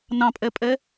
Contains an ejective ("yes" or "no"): yes